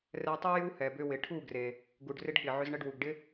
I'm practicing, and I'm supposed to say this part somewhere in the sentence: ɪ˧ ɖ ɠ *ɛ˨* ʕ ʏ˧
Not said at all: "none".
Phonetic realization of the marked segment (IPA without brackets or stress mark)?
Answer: ɪ˨